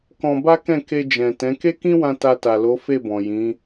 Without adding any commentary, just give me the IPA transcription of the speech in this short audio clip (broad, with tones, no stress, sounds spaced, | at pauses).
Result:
k ɔ̃˧ b a˦ k ɛ̃˦˨ k e˧ d͡ʒ ɛ̃˨ t ɛ̃˨˦ k e˦ k ĩ˦ w ã˧ t a˧ t a˨ l o˨˦ f e˦˨ b ɔ̃˨ j ĩ˨˦